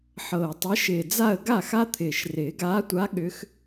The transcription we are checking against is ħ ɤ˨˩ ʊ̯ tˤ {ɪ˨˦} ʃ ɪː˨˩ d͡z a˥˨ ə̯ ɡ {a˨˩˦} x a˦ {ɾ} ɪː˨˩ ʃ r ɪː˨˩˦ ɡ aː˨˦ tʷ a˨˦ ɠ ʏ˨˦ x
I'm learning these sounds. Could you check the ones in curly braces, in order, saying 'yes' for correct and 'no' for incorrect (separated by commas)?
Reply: yes, no, no